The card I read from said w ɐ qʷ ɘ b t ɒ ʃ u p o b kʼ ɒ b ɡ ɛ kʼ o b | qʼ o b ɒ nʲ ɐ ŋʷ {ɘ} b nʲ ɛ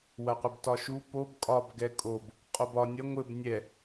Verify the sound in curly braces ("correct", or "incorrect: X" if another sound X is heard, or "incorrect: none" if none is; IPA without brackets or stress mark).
correct